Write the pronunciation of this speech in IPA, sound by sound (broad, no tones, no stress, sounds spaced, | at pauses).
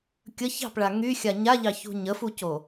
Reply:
kʲ ə ç ɑ̤ p ɭ a ŋ y xʲ a ɲ a ʎ ɑ ç ṳ ɲ ə f u c o